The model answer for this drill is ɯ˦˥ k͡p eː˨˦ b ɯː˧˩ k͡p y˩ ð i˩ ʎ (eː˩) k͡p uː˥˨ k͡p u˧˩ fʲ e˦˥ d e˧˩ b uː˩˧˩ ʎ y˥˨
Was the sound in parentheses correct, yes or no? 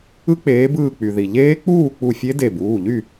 no